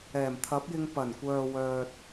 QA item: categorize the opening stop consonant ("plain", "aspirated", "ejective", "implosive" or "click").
aspirated